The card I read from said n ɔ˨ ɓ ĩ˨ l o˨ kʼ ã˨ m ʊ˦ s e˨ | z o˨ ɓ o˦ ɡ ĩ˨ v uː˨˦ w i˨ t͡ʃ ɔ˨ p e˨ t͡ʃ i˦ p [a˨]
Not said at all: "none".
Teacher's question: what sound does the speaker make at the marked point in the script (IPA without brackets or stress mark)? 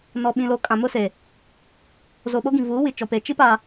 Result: a˨